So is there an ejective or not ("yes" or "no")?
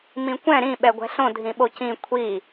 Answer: no